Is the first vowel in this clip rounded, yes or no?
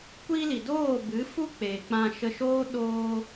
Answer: no